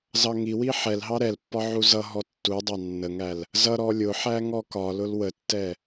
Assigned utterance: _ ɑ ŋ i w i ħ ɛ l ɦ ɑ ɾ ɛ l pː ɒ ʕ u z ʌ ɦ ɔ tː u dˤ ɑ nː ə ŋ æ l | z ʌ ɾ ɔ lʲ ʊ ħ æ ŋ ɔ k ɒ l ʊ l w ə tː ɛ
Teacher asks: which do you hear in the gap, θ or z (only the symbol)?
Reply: z